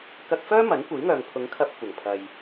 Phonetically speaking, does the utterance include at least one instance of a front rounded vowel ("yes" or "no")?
yes